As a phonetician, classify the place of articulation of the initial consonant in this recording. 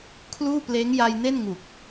velar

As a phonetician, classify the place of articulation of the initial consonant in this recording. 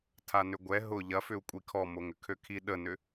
alveolar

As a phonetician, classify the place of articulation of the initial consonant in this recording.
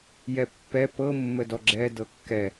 palatal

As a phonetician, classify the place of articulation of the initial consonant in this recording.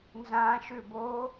alveolar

